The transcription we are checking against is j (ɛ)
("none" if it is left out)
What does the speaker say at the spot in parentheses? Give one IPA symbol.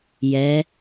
ɛ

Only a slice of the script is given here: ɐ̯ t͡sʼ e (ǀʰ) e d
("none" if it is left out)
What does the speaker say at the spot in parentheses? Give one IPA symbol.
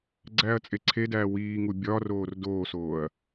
ǀʰ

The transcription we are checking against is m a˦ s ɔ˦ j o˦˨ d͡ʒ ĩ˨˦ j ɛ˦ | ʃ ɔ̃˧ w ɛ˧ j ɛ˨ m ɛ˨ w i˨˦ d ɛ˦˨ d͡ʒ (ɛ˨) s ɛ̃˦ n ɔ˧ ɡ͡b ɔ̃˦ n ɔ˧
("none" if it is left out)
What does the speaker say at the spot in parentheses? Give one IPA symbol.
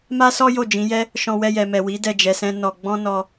ɛ˧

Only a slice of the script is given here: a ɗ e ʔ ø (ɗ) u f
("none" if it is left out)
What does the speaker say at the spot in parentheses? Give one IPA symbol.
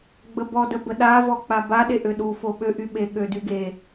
ɗ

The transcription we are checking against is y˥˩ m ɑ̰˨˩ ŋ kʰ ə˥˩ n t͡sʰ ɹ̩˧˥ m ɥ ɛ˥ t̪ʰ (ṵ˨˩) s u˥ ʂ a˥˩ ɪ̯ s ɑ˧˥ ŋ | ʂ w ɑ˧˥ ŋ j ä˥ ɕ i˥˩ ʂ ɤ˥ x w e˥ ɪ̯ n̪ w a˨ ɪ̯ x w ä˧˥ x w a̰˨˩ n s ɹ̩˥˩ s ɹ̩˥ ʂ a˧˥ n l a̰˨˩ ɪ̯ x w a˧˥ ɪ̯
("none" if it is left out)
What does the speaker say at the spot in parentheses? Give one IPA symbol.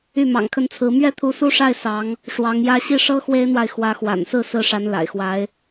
u˧˥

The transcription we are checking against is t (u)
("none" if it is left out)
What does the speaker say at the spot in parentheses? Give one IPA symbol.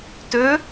ø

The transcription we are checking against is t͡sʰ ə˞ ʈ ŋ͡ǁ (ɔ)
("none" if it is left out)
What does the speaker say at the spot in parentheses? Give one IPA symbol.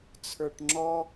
ɔ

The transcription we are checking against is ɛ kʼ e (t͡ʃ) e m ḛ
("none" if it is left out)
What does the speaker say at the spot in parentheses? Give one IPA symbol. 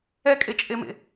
t͡ʃʼ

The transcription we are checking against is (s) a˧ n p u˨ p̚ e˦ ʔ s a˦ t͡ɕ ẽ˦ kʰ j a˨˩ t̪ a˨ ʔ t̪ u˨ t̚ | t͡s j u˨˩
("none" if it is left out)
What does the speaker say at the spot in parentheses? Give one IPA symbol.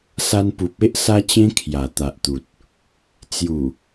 s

